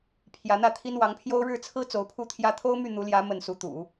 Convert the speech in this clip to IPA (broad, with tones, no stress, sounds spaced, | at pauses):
pʰ j ä˧˥ n̪ ä˥˩ t̪ʰ i˥ n w ɑ˧˥ ŋ pʰ j o˥ ʊ̯ ɻ ɻ̩˥˩ t͡sʰ ɹ̩˥ t͡s o˧˥ ʊ̯ pʰ u˥ t̪ʰ j ä˥ t̪ʰ o˥ ʊ̯ m y˥˩ n̪ u˧˥ l j ä˧˥ m ə˥˩ n s u˧˥ t̪ ṵ˨˩˦